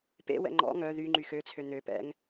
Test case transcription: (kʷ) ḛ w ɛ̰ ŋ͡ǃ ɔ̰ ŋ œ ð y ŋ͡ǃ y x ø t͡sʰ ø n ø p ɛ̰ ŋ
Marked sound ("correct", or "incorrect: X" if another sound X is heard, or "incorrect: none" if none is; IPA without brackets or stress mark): incorrect: p